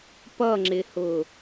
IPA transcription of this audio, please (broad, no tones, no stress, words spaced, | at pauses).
pʌŋ͡ǁɪhʊ